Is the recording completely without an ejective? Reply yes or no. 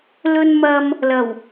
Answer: yes